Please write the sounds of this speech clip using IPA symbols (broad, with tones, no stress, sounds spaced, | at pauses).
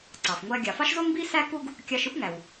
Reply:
ǀ ɑ˩ f ŋʷ æ˧ ɡʲ ɑ˩ f ɑ˥ ʃ z o˥ ŋ b i˥ s æ˥ k u˥ ɡ | kʲ ɑ˧ ʃ ɯ˥ p ŋ æ˩ w